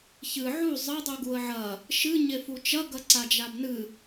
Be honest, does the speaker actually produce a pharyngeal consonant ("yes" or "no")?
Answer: yes